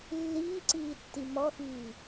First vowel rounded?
no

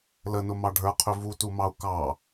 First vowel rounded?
no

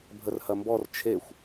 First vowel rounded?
no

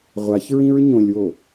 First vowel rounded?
no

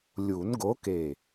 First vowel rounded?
yes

